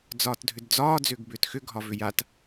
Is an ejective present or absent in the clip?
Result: absent